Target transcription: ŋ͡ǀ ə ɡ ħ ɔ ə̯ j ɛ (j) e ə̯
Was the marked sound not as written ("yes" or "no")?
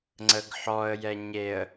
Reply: yes